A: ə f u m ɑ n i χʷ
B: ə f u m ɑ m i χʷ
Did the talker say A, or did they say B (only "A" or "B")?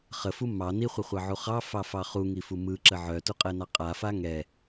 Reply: A